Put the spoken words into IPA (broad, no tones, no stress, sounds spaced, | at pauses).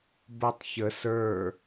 b o tˤ ç ə s ə˞